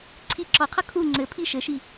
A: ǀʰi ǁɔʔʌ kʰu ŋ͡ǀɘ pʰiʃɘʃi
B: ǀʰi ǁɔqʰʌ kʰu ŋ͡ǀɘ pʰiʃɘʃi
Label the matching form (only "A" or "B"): B